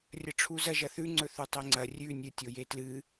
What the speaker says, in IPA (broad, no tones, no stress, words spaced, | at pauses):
rʲɐʈ͡ʂʰuzɐ ʒɐθʉ ŋ͡ǀɵθutˤeŋ͡ǀɐ rʲʉ nʲɨ tʲojetlɨ